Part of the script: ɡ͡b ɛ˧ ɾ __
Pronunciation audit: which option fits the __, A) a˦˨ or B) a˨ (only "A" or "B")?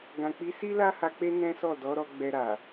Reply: B